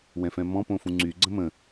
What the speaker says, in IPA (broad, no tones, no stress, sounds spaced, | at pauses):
w ɛ̃ f ɛ̃ m ɔ̃ p õ f ũ ŋ͡ǀ y ɡ͡ǀ ə̃ m ə̃